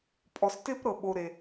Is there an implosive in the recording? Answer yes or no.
yes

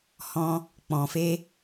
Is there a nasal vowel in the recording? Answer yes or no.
yes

